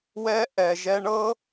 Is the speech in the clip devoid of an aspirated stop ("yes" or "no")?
yes